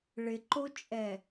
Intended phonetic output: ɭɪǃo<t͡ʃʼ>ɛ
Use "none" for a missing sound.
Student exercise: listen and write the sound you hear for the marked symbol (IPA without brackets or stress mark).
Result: t͡ʃʼ